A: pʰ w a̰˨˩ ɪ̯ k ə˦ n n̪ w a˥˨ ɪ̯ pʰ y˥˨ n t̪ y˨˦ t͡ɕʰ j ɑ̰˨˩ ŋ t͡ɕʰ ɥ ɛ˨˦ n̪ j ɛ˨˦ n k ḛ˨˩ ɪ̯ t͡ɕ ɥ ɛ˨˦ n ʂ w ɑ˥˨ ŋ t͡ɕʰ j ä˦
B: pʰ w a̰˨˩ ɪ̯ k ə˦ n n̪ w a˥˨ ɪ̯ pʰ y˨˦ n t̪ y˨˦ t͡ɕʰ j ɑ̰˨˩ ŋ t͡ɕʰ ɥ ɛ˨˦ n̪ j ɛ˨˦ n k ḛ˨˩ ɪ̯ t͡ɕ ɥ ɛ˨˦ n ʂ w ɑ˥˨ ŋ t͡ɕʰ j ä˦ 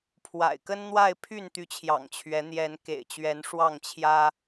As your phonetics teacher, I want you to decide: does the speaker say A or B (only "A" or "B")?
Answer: A